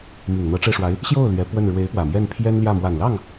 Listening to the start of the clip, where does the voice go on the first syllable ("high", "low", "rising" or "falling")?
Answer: low